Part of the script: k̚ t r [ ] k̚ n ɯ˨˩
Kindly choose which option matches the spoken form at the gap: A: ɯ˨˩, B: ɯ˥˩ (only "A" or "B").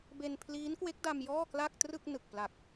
B